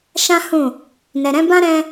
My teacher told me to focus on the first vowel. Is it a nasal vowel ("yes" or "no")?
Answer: yes